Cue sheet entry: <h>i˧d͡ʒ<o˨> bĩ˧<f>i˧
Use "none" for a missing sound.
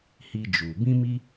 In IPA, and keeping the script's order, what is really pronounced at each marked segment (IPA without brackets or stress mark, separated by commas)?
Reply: h, u˨, m